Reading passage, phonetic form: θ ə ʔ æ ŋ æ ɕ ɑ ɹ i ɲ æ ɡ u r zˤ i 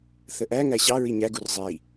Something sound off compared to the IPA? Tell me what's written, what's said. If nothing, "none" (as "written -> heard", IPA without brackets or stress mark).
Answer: none